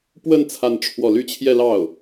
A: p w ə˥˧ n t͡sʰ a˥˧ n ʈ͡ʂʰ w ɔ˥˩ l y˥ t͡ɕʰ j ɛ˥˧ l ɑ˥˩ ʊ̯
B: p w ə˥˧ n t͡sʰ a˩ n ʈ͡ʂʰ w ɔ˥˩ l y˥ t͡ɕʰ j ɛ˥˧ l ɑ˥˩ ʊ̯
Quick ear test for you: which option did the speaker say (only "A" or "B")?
A